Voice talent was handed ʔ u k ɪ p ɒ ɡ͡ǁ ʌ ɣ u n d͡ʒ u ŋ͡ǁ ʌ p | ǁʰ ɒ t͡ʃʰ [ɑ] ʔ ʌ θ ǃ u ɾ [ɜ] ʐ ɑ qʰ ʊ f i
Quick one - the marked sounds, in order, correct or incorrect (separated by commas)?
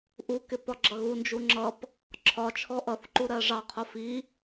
incorrect, correct